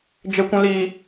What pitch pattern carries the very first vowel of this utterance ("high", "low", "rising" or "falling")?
low